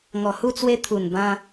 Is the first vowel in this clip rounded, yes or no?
yes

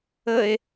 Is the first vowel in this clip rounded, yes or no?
no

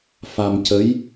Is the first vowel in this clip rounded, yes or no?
no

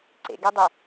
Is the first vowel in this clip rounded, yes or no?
no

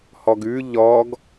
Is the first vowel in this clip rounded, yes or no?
yes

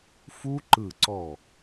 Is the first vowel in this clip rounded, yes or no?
yes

